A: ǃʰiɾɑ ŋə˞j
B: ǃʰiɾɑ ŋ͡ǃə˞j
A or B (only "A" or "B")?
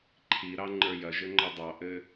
B